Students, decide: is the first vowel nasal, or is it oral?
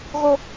oral